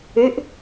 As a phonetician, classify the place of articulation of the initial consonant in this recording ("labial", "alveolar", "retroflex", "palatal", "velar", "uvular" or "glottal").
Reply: glottal